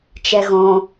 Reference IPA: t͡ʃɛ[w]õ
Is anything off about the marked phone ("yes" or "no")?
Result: yes